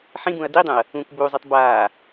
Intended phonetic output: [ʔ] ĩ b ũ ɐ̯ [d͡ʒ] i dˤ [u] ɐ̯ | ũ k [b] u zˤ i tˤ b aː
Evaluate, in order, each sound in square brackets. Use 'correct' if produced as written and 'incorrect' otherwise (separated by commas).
incorrect, incorrect, incorrect, correct